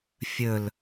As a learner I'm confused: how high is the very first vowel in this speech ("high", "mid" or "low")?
mid